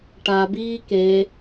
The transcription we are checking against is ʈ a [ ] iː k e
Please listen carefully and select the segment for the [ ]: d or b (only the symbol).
b